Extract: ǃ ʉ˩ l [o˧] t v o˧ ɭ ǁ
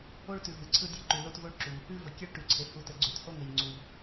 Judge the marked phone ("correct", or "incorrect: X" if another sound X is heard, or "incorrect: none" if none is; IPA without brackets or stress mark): correct